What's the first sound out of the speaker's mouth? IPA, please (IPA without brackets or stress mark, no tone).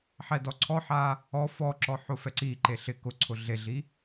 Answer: ħ